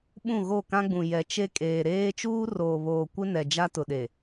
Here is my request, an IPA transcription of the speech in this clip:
ɓũ˦˨ɣo˦˨kã˦ɡ͡bũ˨ jɛ˨t͡ʃe˦ kʼeː˨ɾeː˦ t͡ʃuː˦roː˨βoː˨ kʷɪ˦nɛ˨ d͡ʒa˦tʊ˨ɗe˨

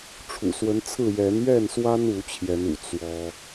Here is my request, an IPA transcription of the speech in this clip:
ʈ͡ʂʰṵ˨˩swə˨˦nt͡sʰɹ̩˥˨ jɛ˨˦nɥɛ˥˨nswa˦n u˨˦t͡ɕʰjɛ˨˦nṵ˨˩ t͡swɔ˦

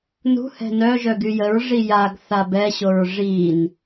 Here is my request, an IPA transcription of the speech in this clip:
nṳ hɛ̤nœʒœ ɡyjəɹʐi jaɡθa bɛɕoɹ ʐin

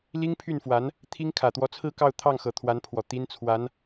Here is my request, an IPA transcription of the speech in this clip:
li˥ŋpʰy˥˩nfwa˧˥n | t̪ʰi˥ŋ kʰä˨˩t̪wɔ˧˥t͡sʰɹ̩˥˧kɑ˥˧ʊ̯ t̪ʰɑ˥˩ŋxɤ˨˩ t̪ʰwa˧˥npʰwɔ˨˩ t̪i˥nt͡sʰwa˧˥n

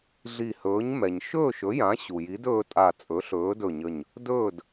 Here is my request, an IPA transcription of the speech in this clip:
ɮi˧˩hɵː˨˥ɲ mɛ˩ɲʃɵː˥˨ʃ ɵ˨˥jã˨˥ ɕu˩ji˨˥dɵː˦tʼa˧˩ t͡sʼɵ˨˥ɬɵː˨˥dɵ˧˩ɲə˧˩ɲ | dɵː˥˨d

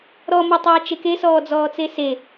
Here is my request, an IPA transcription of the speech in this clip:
ɾɔmotˤaːt͡ʃe kesɔːd͡zɔːt͡se se

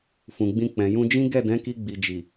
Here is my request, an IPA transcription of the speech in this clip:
fũ˨ɡ͡bĩ˧ k͡pɛ̃˨jũ˧d͡ʒĩ˦ ɡɛ˦˨dɛ̃˨˦ki˧ ɡ͡bi˨d͡ʒi˨

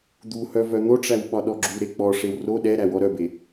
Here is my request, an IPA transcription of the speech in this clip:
d̪u hœvœn̪oʈ͡ʂæw ɓɒɗɔɡ͡ǁuɾe k͡pɔʂew ro ɗɛɾæ wɔɾœbe

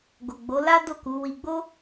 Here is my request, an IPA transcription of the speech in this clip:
ɡo˨ɡ͡bo˨˦la˦ do˦˨ku˨˦ wi˧ɡ͡bo˦

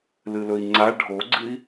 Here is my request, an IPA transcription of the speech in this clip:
lɨlɵi̯ŋ͡ǀa ɖʱoɡ͡ǀɨi̯

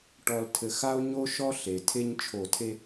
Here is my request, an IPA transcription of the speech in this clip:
ʈɔ˨ltʰɘ˨x a˦o̯ɲo˦ʃɔ˦ ɬe˨ tʰe˦ɲ t͡ʃʰo˨tʰe˦

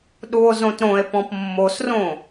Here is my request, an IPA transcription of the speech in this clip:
ɗuo̯zõtɾõe̯pɔ̃p mːosrõ

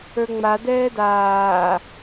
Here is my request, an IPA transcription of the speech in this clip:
ə˞ŋ͡ma dɛːdaː

